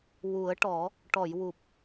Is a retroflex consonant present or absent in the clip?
present